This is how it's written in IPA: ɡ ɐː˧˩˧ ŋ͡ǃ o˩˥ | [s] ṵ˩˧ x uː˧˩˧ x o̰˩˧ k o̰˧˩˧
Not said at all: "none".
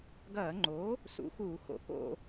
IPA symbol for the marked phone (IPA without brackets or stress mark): s